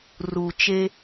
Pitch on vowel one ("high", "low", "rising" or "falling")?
low